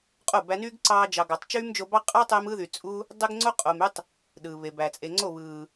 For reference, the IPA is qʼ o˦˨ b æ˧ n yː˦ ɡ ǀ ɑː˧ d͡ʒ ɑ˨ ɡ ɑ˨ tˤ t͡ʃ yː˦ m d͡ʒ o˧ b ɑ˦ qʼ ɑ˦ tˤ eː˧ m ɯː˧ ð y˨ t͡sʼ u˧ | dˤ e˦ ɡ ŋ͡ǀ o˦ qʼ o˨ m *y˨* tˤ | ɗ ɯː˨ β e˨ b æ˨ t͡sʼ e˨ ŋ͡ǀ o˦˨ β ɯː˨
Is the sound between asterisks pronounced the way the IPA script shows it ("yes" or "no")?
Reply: no